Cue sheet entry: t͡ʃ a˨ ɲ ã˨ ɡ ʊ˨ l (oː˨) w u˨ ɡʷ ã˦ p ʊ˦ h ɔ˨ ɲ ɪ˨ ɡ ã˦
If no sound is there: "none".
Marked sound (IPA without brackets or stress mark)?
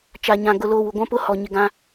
oː˨